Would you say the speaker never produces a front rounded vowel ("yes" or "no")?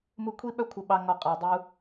no